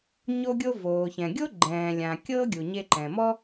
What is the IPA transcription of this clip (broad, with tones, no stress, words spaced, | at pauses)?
ɲo˧ɡʲo˧ voː˩çɛ̃˩ɡʲo˥ ɡ͡ǃɛ̃ː˩lʲã˩kʲɤ˥ ɡʲu˩ɲe˧ǃɛ̃˩mɔ˥